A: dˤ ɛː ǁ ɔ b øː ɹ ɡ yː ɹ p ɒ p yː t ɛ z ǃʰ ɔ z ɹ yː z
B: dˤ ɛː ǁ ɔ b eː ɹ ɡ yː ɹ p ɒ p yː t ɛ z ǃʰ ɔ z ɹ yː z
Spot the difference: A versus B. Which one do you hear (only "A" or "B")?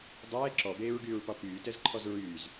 B